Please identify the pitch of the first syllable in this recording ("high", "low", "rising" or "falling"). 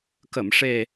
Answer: low